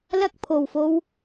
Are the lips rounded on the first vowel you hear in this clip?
no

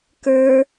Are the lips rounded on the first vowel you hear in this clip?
no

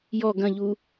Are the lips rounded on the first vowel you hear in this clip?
yes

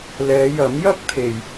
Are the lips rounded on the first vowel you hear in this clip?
no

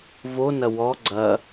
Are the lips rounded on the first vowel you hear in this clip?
yes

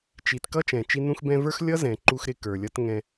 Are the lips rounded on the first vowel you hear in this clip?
no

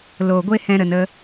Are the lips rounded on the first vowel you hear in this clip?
yes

